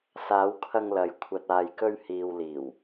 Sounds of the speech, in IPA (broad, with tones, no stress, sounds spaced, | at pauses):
s aː˨˧ w kʰ ɐ˧ ŋ l ɐ˨ j kʷʰ ɐ˨ t̚ aː˨ j k ɵ˧ ɥ h iː˨ w l iː˨˩ w